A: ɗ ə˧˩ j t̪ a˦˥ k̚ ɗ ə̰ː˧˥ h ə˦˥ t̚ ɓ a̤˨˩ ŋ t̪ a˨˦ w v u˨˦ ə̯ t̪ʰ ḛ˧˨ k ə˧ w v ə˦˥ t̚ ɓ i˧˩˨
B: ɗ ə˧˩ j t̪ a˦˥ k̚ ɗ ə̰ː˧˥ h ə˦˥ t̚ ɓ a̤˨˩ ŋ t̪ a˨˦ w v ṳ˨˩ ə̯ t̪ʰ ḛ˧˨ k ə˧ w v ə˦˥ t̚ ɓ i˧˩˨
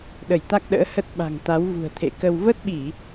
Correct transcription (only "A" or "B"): B